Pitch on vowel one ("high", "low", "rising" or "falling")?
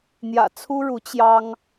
low